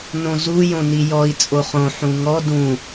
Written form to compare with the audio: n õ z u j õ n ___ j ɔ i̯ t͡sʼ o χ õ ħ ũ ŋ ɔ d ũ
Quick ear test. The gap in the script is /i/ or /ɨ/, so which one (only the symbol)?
i